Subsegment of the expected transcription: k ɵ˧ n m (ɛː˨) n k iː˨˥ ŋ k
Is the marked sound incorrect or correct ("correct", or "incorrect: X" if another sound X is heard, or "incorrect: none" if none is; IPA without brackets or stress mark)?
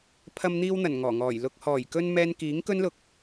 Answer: incorrect: ɛː˧